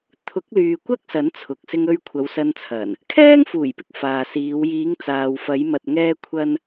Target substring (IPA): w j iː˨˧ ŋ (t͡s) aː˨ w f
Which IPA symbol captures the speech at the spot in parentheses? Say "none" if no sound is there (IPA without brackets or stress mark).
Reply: t͡s